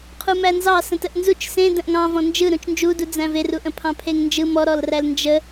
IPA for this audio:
qʰumænzɑ sə̃təʔnzut͡ʃ sẽdə̃ʔ ŋɑ̃ vɔ̃nd͡ʒɯ ɾũt͡ʃnd͡ʒudu d͡zæ̃veru ʔə̃pʰɑ̃pʰeŋnd͡ʒɯ mɔɾɔlræl nd͡ʒə

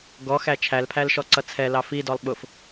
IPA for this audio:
ɡɔ xæt͡ʃʰælpʰæl ʃɔǀʌt͡sʰɛlɑ fidɔlˠ ɓʊf

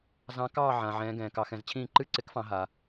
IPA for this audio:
zɑ̃˧˥kɑː˥˨ʕã˩ʕɛ̃ː˩˧ ɡɛ̃ː˩kɑ˩˧xɛ̃˩˧zt͡ɕʰĩː˥˨ ǃɨ˥˨ǀɪ˧˥kfɑ̃˩˧ ɦa˩

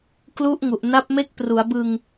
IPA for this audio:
klu˦˥ʔŋu˨˩ʔna˦˥p̚ me˦˥k̚pru˩˦a̯bɯ˧ŋ

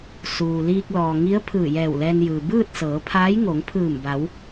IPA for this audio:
suː˩liː˧k̚ lɔː˩ŋi˧˥ə̯ pʰɯː˧˩jɛː˧˩wlɛː˧njɯː˩ bɯː˥˨t̚sɤː˩˧pʰaː˧˥j ŋo˩˧ŋpʰɯː˧˩mba˩˧w

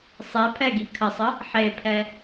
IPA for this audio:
sˤɛpʰɛɡi kʰəsˤə | ħepʰɛ

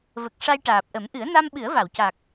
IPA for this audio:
və˨˩k̚ ʂa˧jʈaː˨˩p̚ʔə˨˩˦m ʔɨ˨˩˦ə̯na˧m ɓɨ˨˩˦ə̯va˨˩˨wca˨˩k̚

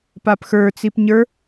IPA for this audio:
papxə˞t͡sip ɲə˞

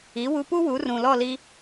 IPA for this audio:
i˩˥wu˧pu˥ wu˩˥rũ˩lɔ˥˩li˧

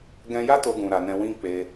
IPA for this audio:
ɡɛ̃˧ja˦ to˧ɡũ˨ ɾa˨˦nɛ̃˦ wĩ˧ k͡pe˧

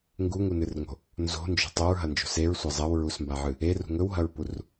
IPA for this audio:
ŋɡuŋunɨrŋo̤ | nzo̤nd͡ʒo̤ tˤoɹɦɐnd͡ʒo̤ seɹsʷɐ zˤɐwɹusmbaʕɨ | erṳ ŋɵwɦɐɹpur

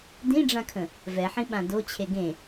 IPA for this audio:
dĩɖ͡ʐãkʰə̃ | vɛħĩɓã dot͡ɕʰe ɡẽ

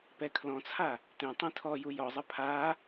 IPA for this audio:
pɛkʰlɔ̃t͡sʰa | tẽ tˤĩtʰɔju jɔzˤɘ pʰa

